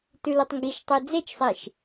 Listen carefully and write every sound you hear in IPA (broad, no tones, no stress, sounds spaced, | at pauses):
t ʉ l u tˤ ŋ ɡ i ʃ tˤ e d͡z e t͡ʃ sˤ i ʃ